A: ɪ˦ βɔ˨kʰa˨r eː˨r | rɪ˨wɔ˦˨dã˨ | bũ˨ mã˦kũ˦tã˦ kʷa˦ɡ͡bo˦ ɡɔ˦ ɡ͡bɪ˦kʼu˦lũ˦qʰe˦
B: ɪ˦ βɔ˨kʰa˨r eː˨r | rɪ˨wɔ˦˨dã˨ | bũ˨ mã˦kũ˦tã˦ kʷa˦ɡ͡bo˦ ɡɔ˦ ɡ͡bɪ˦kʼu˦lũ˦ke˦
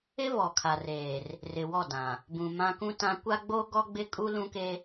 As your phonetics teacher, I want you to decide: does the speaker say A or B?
B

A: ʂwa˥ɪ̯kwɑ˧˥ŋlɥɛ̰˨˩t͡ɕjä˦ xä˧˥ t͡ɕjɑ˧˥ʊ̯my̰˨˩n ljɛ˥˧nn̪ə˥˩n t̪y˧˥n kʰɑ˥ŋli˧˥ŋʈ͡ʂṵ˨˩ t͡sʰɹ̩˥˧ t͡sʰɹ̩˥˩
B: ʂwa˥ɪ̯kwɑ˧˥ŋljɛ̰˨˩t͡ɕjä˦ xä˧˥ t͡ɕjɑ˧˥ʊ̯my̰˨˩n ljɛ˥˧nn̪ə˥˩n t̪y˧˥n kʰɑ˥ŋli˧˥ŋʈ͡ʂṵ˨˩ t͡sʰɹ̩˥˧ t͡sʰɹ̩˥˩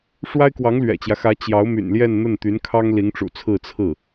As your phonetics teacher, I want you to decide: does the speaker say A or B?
A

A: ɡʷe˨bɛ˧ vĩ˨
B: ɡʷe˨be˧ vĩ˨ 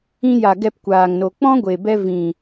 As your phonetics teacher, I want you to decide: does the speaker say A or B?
A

